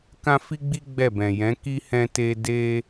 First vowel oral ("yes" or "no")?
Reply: no